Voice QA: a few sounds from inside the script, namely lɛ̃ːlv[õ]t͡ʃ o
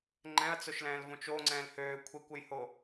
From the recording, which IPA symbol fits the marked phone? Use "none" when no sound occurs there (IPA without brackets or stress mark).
õ